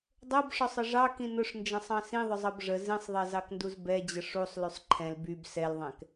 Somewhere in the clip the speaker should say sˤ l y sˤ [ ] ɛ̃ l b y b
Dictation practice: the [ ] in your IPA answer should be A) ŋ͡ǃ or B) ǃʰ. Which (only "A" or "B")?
B